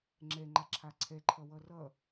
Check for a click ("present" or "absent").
present